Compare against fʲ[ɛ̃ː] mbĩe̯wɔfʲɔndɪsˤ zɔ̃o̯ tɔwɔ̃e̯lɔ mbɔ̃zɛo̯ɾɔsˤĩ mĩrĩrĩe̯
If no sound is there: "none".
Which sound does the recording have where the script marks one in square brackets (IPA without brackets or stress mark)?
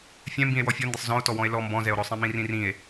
ɛ̃